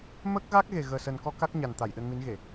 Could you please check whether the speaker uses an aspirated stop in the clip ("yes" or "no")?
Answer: no